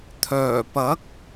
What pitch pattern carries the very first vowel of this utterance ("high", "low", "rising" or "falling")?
low